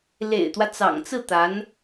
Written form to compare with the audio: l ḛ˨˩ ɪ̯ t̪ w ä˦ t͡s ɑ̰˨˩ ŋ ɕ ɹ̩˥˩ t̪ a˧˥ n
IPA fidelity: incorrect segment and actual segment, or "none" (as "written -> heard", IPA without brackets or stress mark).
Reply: ɕ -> t͡s